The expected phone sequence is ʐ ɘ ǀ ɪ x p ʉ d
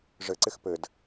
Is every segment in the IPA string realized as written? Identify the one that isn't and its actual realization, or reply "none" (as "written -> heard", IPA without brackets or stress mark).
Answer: ʉ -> ɘ